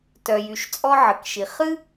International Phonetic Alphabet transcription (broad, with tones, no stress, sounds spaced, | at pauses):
t œ˩ j y˩ ʃ t͡sʼ ɔ˥ ʕ ə˩ k ʃ i˩ χ ɨ˥